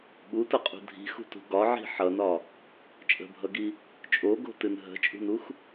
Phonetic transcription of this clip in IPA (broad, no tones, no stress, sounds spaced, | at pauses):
ɓ u t ʌ qʼ ṳ dʱ i̤ x ṳ t ṳ ɡ ɒ ʕ i̤ ħ ʌ n ɒ | t͡ʃʼ ə̤ bʱ ʌ ɡ i | t͡ʃʼ o ɡ o̤ t ɨ n ɦ ə̤ t͡ʃʼ ṳ n u x